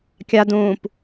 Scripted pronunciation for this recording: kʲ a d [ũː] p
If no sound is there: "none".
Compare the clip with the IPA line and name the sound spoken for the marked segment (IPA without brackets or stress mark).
ũː